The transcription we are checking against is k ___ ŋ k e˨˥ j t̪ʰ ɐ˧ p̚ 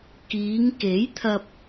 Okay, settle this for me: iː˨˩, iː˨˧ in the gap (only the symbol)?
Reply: iː˨˧